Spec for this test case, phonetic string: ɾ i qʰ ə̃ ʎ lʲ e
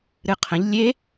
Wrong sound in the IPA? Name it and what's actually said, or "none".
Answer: i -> ɨ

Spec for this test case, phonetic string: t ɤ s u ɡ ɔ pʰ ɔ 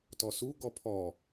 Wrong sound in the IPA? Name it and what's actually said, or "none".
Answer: ɤ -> ɔ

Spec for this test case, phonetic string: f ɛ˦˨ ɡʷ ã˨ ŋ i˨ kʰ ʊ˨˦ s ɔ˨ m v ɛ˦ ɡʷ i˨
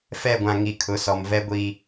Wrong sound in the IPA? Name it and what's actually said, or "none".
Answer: none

